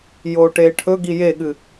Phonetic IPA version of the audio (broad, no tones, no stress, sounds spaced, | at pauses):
j oː ʈ eː ʈʰ ɵ ɡ i j e ɠ ɨ